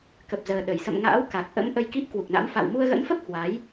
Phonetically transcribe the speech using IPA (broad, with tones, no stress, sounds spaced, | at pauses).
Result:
k ə˨˩ p̚ z əː˨˩ ɗ ə˧˩ j s ə̰˧˨ m ŋ a̰ː˧˥ w k a˨˩ k̚ ʔ ə̰˧˥ m ʔ ə˧ j k i˦˥ p̚ k w u˨˩ k̚ n a̰˧˥ m f a̰ː˧˨ w m u˧ ə̯ ɣ ə̰˧˥ n f ə˦˥ p̚ h w a˨˦ j